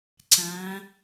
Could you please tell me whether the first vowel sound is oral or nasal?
nasal